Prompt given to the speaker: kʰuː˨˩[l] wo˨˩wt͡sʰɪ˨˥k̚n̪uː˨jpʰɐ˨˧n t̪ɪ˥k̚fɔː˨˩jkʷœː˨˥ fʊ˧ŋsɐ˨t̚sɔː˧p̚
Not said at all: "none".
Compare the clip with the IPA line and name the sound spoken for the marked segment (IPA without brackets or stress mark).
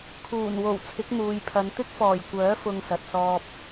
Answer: n